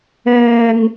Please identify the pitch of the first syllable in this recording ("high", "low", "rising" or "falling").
low